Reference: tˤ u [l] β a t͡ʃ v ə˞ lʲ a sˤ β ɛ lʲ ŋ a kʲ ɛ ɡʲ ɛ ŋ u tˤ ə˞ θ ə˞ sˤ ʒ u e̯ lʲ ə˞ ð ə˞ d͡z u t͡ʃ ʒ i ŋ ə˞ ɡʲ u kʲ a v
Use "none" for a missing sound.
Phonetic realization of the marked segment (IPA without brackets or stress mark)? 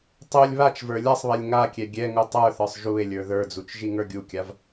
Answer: lʲ